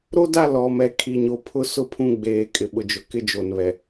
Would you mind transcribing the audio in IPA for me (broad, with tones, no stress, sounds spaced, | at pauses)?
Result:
ɾ o˦ d a˦˨ l ɔ˨ m ɛ˨ kʰ i˨ ɲ o˨ pʰ ʊ˦ s ʊ˦˨ pʰ ũ˦˨ ɡ͡b eː˨ kʼ ɪ˨ ɓ ʊ˨ d͡ʒ ʊ˨ k ɪ˦ d͡ʒ o˨ n β ɛ˨